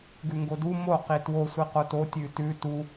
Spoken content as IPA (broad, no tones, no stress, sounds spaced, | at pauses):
ɡ ʉ ŋ ɡ o d u m o q i t w o sʷ i q o t o tʲ ʉ t ʉ t u